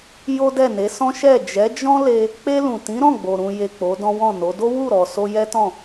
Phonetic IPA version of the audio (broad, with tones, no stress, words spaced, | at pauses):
jo˦dɛ˦˨ne˨˦ sɔ̃˦ ʃɛ˦˨ d͡ʒɛ˨˦ d͡ʒɔ̃˦le˧ | k͡pe˧lũ˨ tĩ˨˦ɾɔ̃˦˨ɡ͡bo˨ ɾũ˨je˨ k͡po˨˦dɔ̃˦wɔ̃˦˨no˨˦ do˦wu˦˨ɾɔ˨ so˧jɛ˦tɔ̃˦˨